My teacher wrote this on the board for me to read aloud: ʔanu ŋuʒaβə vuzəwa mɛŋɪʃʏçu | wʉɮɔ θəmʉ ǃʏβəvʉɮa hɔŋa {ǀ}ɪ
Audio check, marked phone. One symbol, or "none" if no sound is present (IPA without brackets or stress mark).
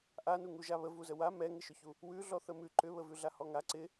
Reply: ǀ